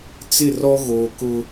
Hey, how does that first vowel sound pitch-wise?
falling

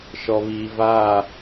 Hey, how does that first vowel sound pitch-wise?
low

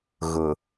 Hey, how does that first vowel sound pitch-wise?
low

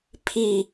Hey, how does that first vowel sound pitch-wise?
falling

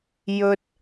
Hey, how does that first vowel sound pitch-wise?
high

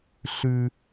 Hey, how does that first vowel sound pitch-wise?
high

